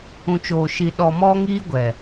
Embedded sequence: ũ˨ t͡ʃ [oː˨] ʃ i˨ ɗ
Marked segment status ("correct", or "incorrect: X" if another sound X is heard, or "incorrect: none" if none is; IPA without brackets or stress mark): correct